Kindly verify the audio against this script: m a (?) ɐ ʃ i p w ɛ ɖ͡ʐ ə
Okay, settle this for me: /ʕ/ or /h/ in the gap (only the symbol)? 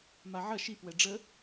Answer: ʕ